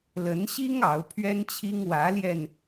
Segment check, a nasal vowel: absent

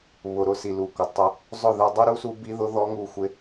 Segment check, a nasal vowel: absent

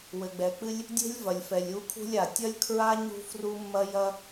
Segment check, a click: absent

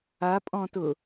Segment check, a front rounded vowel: absent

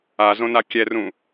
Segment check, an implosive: absent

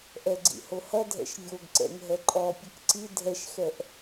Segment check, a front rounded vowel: absent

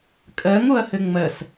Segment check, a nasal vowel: absent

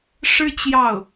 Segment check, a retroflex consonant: present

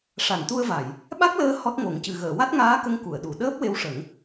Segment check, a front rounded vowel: absent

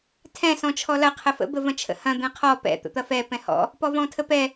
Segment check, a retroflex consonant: absent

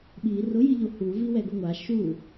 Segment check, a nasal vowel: absent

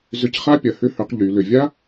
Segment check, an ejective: absent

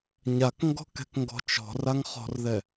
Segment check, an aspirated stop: absent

